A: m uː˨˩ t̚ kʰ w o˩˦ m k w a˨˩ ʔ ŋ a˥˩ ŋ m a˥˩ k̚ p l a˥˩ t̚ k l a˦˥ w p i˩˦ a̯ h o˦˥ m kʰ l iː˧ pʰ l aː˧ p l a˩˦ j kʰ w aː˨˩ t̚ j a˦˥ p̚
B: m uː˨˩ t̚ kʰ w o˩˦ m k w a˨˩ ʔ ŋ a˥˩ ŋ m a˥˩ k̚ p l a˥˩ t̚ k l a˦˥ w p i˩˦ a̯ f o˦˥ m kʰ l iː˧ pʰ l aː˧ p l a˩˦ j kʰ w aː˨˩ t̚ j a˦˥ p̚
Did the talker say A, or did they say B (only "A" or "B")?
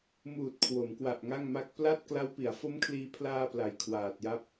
B